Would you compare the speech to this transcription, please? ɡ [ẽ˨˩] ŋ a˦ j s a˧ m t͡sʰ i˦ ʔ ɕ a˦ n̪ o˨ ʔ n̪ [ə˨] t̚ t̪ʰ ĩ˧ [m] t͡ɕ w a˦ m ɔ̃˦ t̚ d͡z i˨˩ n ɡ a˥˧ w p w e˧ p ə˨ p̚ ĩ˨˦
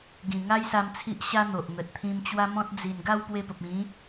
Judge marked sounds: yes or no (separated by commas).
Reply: no, yes, yes